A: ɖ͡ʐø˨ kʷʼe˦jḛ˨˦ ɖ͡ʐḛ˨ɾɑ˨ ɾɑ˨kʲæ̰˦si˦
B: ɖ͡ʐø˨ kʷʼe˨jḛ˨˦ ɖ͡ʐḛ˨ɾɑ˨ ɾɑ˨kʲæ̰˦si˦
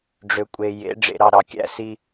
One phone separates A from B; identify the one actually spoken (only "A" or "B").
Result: B